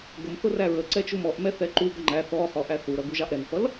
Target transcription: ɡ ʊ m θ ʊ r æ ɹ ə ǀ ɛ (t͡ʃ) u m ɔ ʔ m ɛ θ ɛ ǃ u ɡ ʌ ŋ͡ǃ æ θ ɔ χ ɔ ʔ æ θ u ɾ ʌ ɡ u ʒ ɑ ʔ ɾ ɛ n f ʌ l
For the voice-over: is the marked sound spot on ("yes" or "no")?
yes